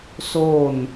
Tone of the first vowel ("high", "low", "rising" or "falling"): falling